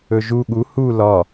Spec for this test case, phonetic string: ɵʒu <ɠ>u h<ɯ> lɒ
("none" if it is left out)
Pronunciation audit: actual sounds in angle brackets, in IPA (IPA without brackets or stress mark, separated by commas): ɠ, u